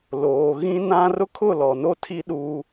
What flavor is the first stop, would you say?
aspirated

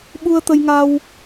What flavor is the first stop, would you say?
implosive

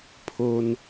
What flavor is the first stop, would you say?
aspirated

